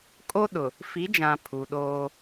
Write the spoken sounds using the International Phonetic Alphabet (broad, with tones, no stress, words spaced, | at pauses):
kʼo˦ɗʊ˨ | fi˨˦d͡ʒã˨ pʰu˨ɗoː˦